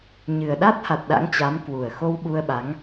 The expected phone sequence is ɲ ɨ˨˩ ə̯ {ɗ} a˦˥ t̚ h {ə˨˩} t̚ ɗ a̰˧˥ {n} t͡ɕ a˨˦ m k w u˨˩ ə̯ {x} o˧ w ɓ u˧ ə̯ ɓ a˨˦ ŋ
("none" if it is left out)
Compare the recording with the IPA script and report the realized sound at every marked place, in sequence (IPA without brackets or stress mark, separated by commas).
ɗ, a˨˩, ŋ, x